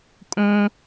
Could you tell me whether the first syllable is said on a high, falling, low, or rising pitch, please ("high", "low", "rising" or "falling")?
high